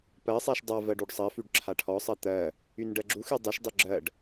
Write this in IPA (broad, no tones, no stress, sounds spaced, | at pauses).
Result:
p ɜ sˤ ɛ ʃ dˤ a v ɜ ɖ y ɖ sˤ ɜ f y ɖ ǁʰ a ʈʰ ɔ sˤ ɜ t̪ ɜ | y n ɖ ɜ ɡ͡ǁ u x y dˤ y ʃ dˤ y ɡ͡ǁ ɜ ɖ